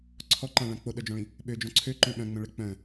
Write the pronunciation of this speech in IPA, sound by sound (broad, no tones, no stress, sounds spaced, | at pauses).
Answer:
ǀʰ ɔ ǃ ã ɭ ã k͡p o ɗ œ d͡ʒ ɔ̃ ɭ ĩ | ɓ ø d͡ʒ ɔ̃ ǀʰ ø ǃ œ̃ ɓ œ̃ ŋ͡m œ̃ ɭ ɛ k͡p œ̃